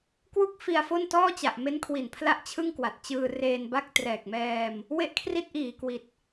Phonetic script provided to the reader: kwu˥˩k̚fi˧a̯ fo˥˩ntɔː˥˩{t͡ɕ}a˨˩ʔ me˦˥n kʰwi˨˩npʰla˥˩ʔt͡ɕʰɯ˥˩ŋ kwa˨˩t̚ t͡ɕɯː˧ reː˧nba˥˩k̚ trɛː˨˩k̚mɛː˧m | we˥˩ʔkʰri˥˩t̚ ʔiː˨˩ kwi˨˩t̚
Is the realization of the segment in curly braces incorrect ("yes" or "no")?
no